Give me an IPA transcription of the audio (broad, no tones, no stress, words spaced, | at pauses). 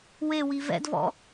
wewi vɛ̰dvɔ̰